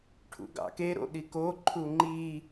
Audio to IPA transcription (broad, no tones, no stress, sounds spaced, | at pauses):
ʈʰ ṵ ɡ ɑ̰ k e ɾ o̰ ɗ i k o ǃʰ u ŋ͡ǃ i